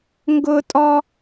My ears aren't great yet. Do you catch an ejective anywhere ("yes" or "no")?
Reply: yes